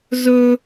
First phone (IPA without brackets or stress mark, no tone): z